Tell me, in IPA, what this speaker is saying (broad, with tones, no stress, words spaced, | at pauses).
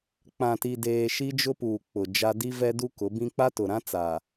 k͡pã˨ti˨ deː˨ ʃi˦d͡ʒʊ˦puː˨ k͡pʊ˨ d͡ʒa˦ di˦vɛ˦ du˦kʊ˨˦bĩ˦ k͡pa˦tʊ˨ɾã˦t͡sa˨